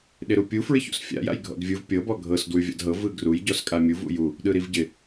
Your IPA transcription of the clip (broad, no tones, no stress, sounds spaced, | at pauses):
ɗ ɪ ɾ u pʲ u f ɹ ɪ ç ṵ s fʲ a̰ j a̰ j ɡʱ ɔ̰ d vʲ ɯ v pʲ ɤ b ɔ ɡʱ ɤ s d w ʉ vʲ a̰ d ɦ ɤ v ɯ ɡ r u j ɟ ɔ s kʼ a mʲ u v ṵ j u | ɗ ɯ ɾ i v ɟ ɪ